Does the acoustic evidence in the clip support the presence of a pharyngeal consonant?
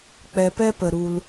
no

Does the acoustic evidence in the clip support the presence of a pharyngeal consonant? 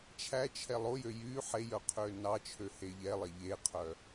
yes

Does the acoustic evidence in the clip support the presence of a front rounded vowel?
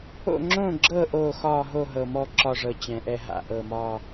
no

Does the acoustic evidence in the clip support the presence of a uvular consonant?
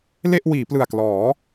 no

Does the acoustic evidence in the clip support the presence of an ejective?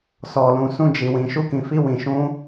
no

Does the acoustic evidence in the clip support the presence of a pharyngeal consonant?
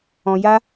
no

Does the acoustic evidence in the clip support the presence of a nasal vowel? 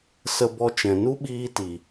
yes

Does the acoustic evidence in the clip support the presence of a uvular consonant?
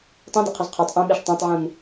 yes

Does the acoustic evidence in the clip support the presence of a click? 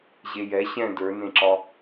yes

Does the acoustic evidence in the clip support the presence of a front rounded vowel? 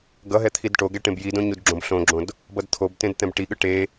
no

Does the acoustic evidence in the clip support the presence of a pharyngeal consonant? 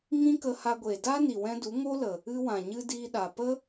no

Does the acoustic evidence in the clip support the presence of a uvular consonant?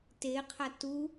yes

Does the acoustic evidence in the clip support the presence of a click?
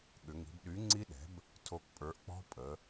yes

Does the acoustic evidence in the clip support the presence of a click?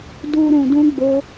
no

